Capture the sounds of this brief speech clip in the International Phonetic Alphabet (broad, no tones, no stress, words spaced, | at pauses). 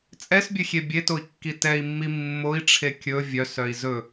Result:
t͡sʼɛsbʲøxʲe bʲetoi̯kːi tɛi̯mːi mːoi̯ʈ͡ʂʰe kʲɵ vʲœsœi̯ zɵ